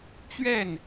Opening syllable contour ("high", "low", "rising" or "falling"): falling